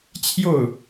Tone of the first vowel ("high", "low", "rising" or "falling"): falling